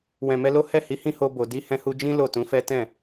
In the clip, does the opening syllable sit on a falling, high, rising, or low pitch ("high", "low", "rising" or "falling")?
low